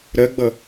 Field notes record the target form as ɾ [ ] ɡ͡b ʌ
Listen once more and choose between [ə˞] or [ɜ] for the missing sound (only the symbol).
ɜ